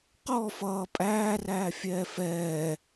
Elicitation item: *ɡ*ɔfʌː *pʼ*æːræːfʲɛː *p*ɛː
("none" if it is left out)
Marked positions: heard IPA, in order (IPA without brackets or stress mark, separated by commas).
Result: q, pʼ, f